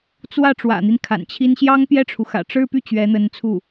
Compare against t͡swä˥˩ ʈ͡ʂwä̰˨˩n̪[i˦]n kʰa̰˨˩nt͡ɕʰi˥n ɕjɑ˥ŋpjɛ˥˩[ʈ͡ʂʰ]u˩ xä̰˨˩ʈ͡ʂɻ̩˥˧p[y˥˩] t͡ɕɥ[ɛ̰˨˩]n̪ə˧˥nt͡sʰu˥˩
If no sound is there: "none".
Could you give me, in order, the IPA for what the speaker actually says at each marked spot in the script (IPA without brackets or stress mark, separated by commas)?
i˦, ʈ͡ʂʰ, y˥˩, ɛ˧˥